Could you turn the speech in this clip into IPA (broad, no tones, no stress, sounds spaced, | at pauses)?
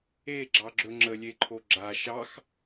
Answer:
e ɡ͡ǁ ɑ ɡ͡ǁ ɵ ŋ͡ǁ ə lʲ e ǃʰ o ɡ͡ǁ a ʃ ɑ x